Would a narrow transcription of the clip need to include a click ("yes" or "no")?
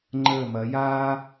yes